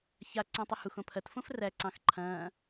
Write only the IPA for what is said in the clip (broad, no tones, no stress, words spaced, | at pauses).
ça ǀõtˤəhux õpʰɐt fõfræ ǀɑ̃xǃʰɐ̃ː